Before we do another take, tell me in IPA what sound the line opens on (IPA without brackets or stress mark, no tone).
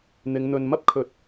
n̪